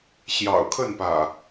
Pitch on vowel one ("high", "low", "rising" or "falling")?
low